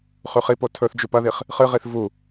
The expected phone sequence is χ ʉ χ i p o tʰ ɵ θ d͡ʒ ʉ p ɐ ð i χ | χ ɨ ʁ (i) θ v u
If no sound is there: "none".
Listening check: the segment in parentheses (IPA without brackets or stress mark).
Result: i